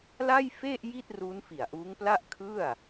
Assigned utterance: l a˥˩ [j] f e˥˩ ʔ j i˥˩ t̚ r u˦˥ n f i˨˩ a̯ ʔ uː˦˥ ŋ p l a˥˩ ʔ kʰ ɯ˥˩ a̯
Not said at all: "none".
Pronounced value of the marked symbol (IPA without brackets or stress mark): j